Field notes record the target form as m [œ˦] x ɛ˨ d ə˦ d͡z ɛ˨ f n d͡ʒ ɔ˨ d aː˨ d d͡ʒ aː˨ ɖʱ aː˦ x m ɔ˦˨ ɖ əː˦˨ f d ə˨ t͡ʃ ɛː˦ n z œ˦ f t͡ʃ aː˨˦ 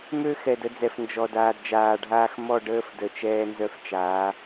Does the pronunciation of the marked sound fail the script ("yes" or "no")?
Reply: yes